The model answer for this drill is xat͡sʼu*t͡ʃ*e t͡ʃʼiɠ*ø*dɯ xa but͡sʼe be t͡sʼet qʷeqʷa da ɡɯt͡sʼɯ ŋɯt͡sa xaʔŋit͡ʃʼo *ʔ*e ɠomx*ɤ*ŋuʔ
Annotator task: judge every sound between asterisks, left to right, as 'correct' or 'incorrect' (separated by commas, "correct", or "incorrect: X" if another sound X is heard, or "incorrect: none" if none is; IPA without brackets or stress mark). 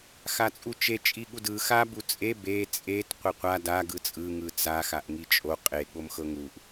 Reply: correct, incorrect: u, incorrect: qʼ, correct